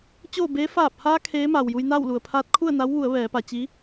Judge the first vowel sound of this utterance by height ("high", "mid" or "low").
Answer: mid